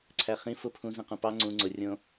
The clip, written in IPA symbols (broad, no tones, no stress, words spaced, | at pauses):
ǀʰæχĩ fʊ pʰũ zĩqũpɑ ŋ͡ǀũ ŋ͡ǀʊ rʲõ